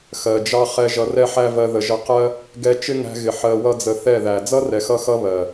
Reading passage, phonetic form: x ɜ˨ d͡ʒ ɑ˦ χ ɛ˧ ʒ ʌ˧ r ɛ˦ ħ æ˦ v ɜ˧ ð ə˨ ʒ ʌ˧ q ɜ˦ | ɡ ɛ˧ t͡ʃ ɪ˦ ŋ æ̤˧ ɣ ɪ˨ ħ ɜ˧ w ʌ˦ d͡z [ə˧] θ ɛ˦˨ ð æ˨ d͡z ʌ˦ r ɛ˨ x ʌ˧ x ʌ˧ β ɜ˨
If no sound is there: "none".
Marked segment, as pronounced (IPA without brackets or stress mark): ə˧